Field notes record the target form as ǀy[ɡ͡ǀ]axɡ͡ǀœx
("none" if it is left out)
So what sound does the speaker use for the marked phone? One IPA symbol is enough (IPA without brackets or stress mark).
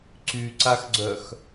ǀ